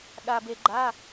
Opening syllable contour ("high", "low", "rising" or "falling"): low